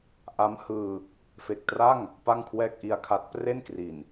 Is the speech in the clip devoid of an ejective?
yes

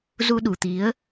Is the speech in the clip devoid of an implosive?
no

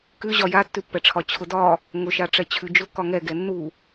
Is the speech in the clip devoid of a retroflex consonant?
no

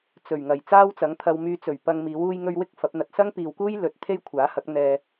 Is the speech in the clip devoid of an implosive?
yes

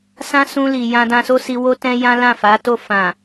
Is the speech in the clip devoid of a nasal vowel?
no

